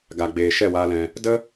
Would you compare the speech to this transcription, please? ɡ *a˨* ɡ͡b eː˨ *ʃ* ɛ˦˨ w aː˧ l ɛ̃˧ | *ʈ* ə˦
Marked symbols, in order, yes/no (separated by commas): yes, yes, no